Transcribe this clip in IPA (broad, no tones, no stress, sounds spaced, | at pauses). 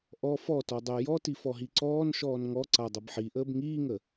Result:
ʔ ɔ f ɔ t ɔ dˤ əː j ɔ t i f ɔ ɦ i ǀ ɔː n ʃ ɔː n ŋ ɔ ǀ a dˤ ʌ b ħ i ʔ əː b ŋ iː ŋ ə